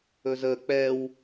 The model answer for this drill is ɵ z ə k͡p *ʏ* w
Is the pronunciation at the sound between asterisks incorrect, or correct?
incorrect